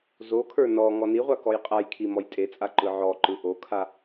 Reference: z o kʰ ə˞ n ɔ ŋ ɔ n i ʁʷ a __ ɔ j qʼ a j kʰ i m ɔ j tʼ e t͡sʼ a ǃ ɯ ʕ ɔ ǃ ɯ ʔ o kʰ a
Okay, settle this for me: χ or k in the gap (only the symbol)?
k